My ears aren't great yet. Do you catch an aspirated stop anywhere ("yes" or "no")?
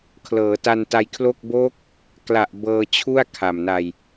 yes